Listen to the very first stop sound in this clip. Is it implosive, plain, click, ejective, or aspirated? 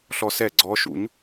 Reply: click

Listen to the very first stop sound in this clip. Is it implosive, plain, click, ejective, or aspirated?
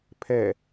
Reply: aspirated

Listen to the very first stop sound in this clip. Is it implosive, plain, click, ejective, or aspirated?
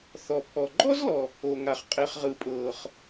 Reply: aspirated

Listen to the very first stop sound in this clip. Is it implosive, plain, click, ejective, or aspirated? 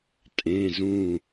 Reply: ejective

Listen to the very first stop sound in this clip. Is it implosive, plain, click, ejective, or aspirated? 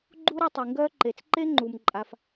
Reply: click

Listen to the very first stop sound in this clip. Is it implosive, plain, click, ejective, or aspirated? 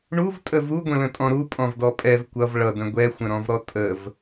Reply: ejective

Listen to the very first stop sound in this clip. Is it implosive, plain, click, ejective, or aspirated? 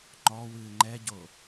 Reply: click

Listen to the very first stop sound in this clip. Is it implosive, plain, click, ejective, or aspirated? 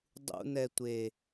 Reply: plain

